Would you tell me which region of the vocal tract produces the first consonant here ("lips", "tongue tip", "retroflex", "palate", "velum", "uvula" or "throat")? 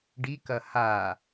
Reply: retroflex